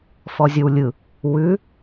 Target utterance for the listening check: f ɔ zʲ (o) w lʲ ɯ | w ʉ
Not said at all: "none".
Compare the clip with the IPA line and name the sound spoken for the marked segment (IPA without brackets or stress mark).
o